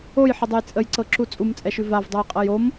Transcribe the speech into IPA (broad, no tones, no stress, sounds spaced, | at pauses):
o j ħ ə dˤ ə j t͡sʼ ə j ǀ ɤ ǁ u t͡sʼ u m t͡sʼ ɛ ʃ ʉ v a v dˤ ɤ j qʼ ɤ j o m